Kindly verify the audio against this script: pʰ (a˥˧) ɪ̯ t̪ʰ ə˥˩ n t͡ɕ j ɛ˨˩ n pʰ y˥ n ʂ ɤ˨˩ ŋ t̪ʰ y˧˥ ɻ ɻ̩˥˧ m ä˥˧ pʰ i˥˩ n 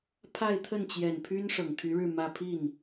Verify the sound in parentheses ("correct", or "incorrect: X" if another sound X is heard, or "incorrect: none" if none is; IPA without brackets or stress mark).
correct